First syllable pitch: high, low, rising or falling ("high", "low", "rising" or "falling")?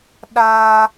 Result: high